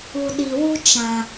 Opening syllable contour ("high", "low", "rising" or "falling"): low